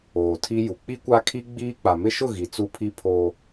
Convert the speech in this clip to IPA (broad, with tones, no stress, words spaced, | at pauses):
oː˨tʰi˦ju˨ k͡pi˦kʷa˦kʰi˦ ɡ͡biː˦ k͡pa˨mɪ˦ʃʊ˦˨ ɣi˨t͡su˦pʰi˦ pʰoː˦